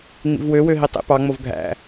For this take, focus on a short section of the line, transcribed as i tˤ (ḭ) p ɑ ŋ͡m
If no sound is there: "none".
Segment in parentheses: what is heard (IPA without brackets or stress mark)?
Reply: ḭ